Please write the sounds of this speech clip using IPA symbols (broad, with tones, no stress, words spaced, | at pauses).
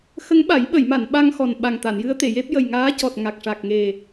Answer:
xə˧˥ŋɓa˨˩˦jɓə˨˩˨jma˨˩˨n ɓa˧ŋxɔ˨˩nɓa˨˩ŋ t̪a˨˩˨njɨ˧˥ə̯t̪e˨˩˨je˦˥p̚ jə˨˩j ŋaː˧˥cɔ˨˩t̚ ŋa˨˩k̚ʂa˨˩k̚ ŋe˨˩